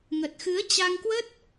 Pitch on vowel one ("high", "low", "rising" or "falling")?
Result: low